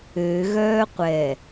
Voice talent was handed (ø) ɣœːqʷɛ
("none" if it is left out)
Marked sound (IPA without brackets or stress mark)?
ø